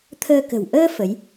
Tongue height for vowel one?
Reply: mid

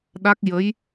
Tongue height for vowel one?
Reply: low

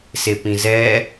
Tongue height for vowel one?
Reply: mid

